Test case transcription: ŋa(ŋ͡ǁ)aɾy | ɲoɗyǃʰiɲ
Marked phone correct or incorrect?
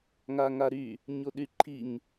incorrect